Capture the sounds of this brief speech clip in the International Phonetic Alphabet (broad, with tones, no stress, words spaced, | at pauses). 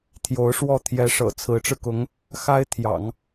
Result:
t̪ʰjo˧˥ʊ̯ʂwɔ˥˩ t̪ʰjɛ˧˥ʂɤ̰˨˩ t͡sʰɹ̩˧˥ʈ͡ʂɻ̩˧kʊ˧˥ŋ | xa˥ɪ̯t̪ʰjɑ̰˨˩˦ŋ